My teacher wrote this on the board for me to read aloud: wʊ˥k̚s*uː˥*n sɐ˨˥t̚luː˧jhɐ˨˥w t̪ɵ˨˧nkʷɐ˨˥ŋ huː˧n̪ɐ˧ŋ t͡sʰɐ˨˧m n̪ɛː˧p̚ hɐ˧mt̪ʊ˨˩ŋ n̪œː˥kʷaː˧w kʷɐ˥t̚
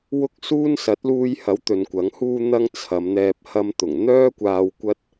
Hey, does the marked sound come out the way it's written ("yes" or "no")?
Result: yes